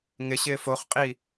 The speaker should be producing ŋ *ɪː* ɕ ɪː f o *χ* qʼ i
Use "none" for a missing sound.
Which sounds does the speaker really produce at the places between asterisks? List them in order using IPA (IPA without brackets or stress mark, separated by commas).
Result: ɪ, χ